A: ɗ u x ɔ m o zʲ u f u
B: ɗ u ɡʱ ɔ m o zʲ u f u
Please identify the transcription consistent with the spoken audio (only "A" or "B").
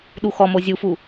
A